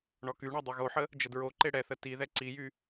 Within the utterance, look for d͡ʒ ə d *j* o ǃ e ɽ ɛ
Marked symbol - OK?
no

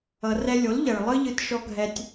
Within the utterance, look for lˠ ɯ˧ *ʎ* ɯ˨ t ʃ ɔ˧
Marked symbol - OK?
yes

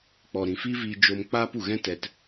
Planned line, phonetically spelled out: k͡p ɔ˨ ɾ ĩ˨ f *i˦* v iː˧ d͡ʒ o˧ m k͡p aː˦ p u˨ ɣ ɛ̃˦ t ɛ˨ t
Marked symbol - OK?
yes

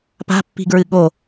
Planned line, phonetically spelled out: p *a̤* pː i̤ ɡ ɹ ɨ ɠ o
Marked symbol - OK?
yes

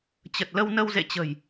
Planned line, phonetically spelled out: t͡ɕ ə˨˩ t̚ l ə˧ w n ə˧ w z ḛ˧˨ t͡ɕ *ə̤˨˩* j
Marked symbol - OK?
yes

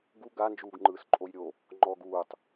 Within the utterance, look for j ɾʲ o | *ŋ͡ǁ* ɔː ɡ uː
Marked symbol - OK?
no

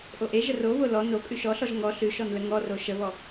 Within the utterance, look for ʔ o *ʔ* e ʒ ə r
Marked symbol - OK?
yes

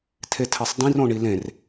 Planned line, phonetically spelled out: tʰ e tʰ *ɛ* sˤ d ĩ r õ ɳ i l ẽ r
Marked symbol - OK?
yes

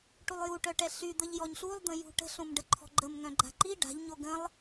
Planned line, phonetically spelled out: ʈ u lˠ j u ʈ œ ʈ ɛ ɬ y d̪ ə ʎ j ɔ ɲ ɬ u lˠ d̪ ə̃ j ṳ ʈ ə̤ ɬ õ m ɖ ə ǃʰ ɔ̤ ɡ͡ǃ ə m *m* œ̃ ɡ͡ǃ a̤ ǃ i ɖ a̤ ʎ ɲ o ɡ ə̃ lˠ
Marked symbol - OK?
no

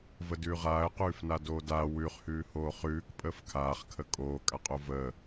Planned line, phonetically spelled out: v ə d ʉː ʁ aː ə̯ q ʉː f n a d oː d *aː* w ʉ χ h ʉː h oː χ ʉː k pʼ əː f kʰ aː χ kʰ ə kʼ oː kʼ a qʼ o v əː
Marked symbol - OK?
yes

